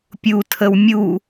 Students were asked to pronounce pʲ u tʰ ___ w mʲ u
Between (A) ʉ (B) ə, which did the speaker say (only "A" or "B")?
B